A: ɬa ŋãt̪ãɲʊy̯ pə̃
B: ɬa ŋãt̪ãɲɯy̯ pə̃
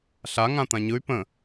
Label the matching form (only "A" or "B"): B